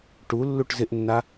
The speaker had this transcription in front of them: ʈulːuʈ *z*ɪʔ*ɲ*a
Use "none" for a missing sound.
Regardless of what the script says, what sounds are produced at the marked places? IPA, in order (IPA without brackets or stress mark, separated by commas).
z, nː